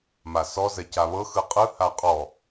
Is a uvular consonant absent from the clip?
no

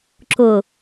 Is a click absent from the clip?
no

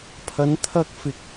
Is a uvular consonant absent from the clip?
yes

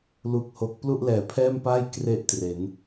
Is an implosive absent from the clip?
yes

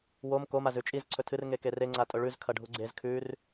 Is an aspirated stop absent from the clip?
no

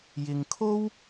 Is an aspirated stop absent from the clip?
no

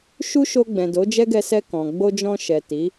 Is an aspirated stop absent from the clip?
yes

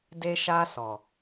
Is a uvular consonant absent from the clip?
yes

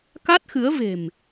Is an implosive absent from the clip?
yes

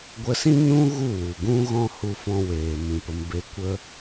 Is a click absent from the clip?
yes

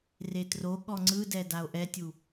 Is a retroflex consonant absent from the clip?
yes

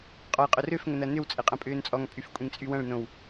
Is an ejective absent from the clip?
no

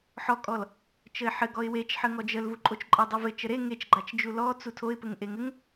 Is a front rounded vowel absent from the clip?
yes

